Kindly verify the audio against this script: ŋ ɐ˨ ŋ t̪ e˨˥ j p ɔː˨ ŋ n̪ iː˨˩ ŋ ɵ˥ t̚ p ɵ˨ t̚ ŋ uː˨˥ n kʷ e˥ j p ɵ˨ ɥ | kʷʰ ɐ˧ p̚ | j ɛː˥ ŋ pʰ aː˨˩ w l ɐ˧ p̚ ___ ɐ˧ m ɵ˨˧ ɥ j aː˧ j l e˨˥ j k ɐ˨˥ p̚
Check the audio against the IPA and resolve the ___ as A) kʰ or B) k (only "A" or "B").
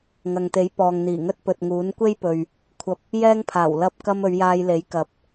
B